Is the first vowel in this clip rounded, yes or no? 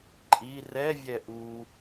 no